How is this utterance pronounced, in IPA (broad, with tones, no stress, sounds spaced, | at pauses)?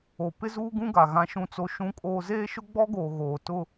o˨ p ɪ˦ z uː˦ ɡ ũ˦ ɡ a˨ ɣ ã˦ ʃ ũ˦ t͡s o˦ ʃ ũ˦ kʼ oː˦ z eː˦ ʃ ʊ˦ ɡ͡b ɔ˦ ɡ oː˨ ɣ oː˨ t ʊ˦